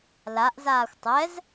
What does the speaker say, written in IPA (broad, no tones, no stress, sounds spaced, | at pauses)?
l a ʔ z aː xʷ tˤ ɛ z